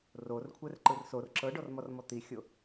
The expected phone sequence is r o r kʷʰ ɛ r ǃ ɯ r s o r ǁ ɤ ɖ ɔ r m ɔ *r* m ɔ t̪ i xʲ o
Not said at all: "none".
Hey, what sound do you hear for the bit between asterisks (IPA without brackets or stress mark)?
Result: r